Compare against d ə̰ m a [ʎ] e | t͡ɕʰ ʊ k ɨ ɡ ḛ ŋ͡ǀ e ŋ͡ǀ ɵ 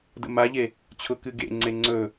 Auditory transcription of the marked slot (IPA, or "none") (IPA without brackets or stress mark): ʎ